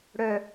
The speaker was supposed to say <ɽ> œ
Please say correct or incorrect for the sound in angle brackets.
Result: correct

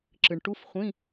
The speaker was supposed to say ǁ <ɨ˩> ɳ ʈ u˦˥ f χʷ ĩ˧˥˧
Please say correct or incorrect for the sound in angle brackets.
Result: correct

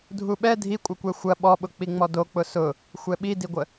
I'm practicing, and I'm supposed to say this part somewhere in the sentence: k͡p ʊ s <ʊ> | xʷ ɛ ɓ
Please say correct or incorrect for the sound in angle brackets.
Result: correct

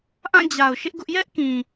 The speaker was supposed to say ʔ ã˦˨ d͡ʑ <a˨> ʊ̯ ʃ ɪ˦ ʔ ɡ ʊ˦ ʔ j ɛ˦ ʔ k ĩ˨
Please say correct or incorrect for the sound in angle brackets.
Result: correct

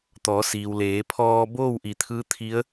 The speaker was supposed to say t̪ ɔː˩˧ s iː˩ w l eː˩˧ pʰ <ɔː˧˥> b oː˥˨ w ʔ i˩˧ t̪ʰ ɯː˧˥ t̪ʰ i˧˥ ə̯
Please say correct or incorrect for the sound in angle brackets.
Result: incorrect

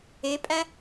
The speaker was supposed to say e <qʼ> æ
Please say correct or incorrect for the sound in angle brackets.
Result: incorrect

